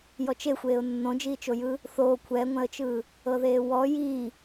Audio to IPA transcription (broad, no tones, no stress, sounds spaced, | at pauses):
j ɔ t͡ʃ e xʷ eː ʊ̯ nː õ d͡ʒ iː t͡ʃ o j ɯː | θ oː kʷʰ ɛ ŋʷ ɛ̃ ə̯ t͡ʃ ɯː | ɤ ð eː w ɔ j iː